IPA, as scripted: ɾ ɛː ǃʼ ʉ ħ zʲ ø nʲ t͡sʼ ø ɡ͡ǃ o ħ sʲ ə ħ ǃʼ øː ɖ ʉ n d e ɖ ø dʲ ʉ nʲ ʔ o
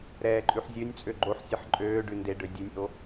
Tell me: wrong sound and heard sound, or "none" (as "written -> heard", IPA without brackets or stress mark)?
none